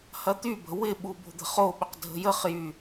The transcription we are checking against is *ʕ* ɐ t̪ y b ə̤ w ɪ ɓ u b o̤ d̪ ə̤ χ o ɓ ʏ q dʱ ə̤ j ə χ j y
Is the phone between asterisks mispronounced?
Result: yes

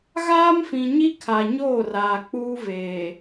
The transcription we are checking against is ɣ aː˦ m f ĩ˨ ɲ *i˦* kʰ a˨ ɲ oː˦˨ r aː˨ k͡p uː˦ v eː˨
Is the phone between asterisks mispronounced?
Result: no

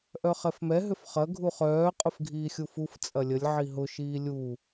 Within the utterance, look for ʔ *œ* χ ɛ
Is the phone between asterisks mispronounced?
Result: no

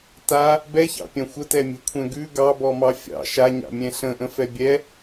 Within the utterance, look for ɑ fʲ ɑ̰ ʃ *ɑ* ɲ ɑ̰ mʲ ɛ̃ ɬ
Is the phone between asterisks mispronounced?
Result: yes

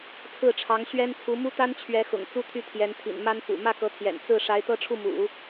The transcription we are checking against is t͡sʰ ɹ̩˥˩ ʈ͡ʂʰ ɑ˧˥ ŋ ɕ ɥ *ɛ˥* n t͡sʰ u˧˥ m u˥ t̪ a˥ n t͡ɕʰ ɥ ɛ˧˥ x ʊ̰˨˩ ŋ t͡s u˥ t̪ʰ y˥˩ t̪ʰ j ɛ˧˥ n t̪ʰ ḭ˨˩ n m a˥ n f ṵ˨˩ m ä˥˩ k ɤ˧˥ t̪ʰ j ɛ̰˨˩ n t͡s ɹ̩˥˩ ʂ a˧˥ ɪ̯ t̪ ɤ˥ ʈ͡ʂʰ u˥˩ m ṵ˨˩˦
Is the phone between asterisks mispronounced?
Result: no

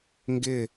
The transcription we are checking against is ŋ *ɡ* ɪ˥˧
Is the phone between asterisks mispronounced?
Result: no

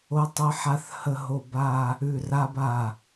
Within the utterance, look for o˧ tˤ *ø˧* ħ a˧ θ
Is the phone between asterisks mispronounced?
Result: yes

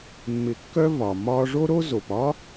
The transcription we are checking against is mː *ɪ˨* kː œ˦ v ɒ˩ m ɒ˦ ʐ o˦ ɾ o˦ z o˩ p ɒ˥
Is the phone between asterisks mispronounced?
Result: no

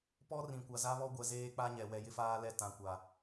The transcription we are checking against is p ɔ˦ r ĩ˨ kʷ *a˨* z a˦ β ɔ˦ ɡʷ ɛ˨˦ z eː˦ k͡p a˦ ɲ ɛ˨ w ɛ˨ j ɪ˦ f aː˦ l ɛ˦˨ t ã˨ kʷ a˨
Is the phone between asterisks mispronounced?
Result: no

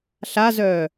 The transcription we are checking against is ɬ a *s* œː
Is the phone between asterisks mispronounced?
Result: yes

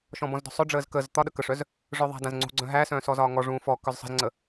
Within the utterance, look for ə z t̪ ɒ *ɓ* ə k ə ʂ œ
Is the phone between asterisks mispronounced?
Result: yes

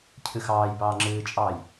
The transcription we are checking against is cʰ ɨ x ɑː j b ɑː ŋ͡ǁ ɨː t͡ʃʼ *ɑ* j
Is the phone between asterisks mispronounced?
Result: no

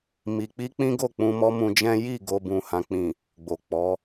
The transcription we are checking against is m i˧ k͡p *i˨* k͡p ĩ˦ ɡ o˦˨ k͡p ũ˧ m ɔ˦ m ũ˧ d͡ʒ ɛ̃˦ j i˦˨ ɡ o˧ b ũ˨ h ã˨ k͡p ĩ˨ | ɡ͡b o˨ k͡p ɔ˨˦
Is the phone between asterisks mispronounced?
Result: yes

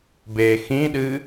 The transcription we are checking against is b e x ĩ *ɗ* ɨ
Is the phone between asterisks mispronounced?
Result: no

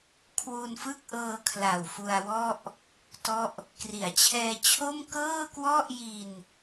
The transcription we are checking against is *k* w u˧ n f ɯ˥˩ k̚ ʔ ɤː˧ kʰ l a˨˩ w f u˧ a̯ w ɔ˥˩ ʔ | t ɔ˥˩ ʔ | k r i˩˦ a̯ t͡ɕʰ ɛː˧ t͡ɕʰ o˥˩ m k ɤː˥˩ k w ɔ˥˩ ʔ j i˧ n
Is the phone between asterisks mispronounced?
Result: yes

